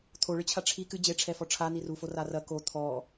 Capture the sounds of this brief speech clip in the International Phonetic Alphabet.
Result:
t̪ʰ o ɭ ɨ t͡ɕʰ a ʈ͡ʂʰ i k ɨ d͡ʑ e ʈ͡ʂʰ ɛ f ɔ ʈ͡ʂʰ a n̪ i r u f o r a r ɐ k o t̪ʰ ɔ

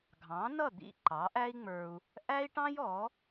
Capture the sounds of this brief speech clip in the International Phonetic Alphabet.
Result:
ɡʱ ɑ̃˩˥ n ʌ˥˩ d̪ ḭ˥˩ ǃ ɑ˩˥ ʔ æ˥ i̯ ŋ͡m ə˞˧ u̯ | ʔ æ˥ i̯ ʈ ɑ̃˥ j ɔ˩˥

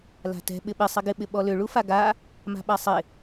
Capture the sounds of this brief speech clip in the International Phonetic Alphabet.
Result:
l a̤ t ɛ̤ ɓ ɪ ɓ ɪ sˤ ɪ ɡ ɪ ɓ ɪ ɓ ɔ l ʏ ɭ u f a ɡ a | m a̤ ɓ a sˤ ɪ

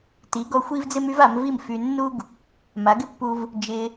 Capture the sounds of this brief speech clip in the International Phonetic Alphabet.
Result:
t i˩˥ ɡ ɔ˧ xʷ i˥ v d͡z ɪ˥ m y˥ v a˩˥ m v i˥˩ m f y˧ nː u˥ ɡ | m a˩˥ ɡ ɪ˥ pː u˧ v | d͡ʒ ɪ˧

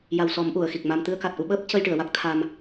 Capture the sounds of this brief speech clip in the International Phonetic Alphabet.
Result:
j a˨˩ w s ɔ˨˩˦ m ʔ u˨˩˨ ə̯ x i˨˩ k̚ m a˧ m t̪ ɨ˧ ə̯ k a˨˩ t̚ ʔ u˧ ɓ əː˦˥ p̚ c ə˧ j ʈ ɨ˨˩˨ ə̯ w a˦˥ k̚ t̪ʰ a˧ m

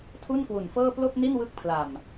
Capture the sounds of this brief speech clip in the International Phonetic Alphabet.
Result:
tʰ u˥˩ n k w u˨˩ n f ɤː˥˩ p l o˥˩ k̚ n i˥˩ n w ɯ˦˥ k̚ pʰ l a˨˩ m

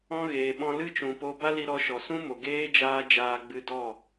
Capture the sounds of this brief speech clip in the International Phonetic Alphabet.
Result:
ɔ̃˦ ɣ eː˨ ɓ ɔ̃˧ l ɨ˦ t͡ʃ ũ˨ p o˧ b a˦ l i˧ ɾ ɔ˧ ʃ ɔ˨ s ũ˦ m o˨ ɡ eː˦ d͡ʒ aː˦ d͡ʒ aː˧ ɡ͡b ɨ˧ d ɔ˦˨

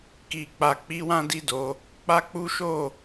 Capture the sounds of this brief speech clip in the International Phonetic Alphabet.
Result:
k i˧ k͡p a˧ k͡p i˦ w ã˦ d i˦˨ d o˧ | k͡p a˦ k͡p u˦ ʃ o˦˨

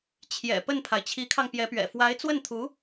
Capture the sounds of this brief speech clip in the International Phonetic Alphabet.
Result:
t͡ɕʰ j ɛ̰˨˩ p ə˥˩ n pʰ a˩ ɪ̯ t͡ɕʰ i˧˥ kʰ ɑ˧ ŋ p j ɛ˧˥ p ɥ ɛ̰˨˩ f w a˧˥ ɪ̯ t͡s w ə˥˩ n t̪ʰ u˧˥

